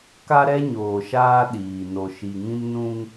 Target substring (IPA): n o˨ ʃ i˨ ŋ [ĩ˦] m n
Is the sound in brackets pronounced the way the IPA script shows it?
yes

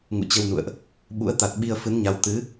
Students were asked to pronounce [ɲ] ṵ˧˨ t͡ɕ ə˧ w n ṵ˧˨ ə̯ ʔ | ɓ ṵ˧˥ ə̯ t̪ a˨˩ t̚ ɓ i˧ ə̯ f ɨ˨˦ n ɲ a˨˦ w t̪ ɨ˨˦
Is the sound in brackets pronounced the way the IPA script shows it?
no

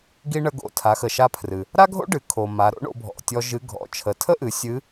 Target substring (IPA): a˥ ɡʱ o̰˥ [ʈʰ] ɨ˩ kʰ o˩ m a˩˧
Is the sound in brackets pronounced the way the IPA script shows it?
no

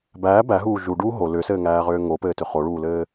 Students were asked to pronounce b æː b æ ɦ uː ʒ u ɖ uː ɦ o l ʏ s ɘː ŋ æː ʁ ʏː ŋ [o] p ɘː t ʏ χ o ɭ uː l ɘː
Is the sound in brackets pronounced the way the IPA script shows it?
yes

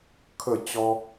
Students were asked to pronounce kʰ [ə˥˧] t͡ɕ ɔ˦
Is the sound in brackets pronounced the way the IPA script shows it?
yes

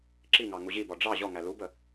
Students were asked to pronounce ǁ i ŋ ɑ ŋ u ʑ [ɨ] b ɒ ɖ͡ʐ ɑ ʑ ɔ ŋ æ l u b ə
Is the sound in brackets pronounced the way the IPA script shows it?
no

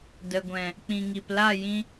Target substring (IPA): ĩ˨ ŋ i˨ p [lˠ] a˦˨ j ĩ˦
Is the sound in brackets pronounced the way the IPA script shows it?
no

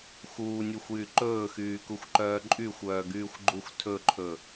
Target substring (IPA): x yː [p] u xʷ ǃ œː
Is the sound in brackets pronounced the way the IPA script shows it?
no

